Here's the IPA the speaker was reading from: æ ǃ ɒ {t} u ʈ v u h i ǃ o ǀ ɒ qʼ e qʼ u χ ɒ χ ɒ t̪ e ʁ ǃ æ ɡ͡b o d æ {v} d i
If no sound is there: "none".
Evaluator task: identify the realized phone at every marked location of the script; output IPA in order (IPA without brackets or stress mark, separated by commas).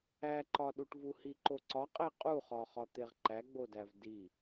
ɗ, v